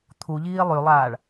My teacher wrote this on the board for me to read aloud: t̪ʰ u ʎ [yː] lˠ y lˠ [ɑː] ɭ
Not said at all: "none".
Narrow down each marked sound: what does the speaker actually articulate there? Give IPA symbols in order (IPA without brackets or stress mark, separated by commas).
iː, aː